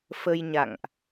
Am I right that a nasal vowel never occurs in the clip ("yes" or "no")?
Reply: yes